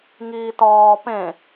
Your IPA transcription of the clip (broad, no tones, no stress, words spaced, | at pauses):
ŋiːtɒː pẽ